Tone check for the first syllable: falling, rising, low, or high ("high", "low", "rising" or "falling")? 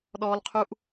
high